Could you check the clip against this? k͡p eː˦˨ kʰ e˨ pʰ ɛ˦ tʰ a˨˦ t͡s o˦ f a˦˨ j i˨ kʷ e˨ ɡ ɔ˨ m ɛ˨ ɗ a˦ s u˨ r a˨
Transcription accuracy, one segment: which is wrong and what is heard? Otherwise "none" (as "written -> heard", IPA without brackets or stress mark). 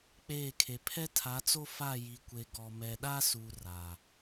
none